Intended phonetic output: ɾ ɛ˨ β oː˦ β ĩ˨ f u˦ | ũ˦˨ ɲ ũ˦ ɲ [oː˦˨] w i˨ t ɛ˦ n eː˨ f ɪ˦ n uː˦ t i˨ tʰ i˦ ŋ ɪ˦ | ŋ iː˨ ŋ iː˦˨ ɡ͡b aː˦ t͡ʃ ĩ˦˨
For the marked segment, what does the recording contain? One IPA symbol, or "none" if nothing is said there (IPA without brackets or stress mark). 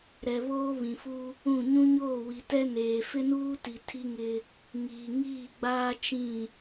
oː˦˨